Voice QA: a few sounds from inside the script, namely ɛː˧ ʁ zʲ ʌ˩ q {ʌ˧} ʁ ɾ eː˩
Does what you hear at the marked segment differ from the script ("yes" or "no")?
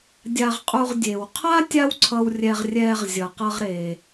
no